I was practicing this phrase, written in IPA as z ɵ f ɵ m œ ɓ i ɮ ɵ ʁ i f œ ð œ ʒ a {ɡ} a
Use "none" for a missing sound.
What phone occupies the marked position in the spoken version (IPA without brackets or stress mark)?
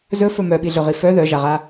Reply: ʁ